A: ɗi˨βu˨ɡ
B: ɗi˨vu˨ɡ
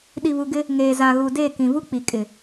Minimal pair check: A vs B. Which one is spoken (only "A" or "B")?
A